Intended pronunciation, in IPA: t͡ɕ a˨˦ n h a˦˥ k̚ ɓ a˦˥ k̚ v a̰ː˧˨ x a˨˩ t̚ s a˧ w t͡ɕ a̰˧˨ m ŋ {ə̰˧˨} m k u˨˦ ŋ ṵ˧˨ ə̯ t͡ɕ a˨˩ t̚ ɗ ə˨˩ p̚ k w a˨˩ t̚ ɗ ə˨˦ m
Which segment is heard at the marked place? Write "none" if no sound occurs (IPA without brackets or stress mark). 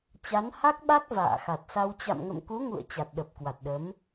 ə̰˧˨